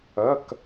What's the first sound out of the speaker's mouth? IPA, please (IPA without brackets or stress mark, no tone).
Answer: ɐ